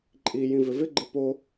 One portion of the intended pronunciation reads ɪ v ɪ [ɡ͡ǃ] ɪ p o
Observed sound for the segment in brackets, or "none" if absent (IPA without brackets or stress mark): ɡ͡ǃ